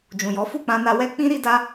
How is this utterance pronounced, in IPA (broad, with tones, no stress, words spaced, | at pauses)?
d͡ʒũ˨jɔ˨˦ fu˦˨k͡pã˧na˧ wɛ˦ k͡pĩ˦ ɾi˦da˦